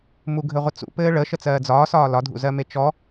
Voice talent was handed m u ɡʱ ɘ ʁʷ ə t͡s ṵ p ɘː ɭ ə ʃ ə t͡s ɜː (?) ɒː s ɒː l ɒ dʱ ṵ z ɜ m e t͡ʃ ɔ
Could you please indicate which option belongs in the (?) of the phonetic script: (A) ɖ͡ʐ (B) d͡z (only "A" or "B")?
B